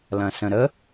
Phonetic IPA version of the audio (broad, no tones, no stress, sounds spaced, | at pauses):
l ɐ̃ s ə̃ ɾ ə